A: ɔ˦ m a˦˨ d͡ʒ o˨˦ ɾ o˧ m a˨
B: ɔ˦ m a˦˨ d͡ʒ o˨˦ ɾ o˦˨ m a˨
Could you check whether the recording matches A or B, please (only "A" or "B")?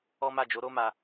A